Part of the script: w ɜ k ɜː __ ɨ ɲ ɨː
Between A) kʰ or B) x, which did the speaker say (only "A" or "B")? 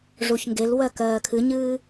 A